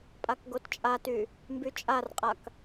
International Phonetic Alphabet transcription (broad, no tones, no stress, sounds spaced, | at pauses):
pʼ a k ɡ o t t͡ʃʼ a t y | m b y t͡ʃʼ a r qʼ a k